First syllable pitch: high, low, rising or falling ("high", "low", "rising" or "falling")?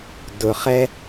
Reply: low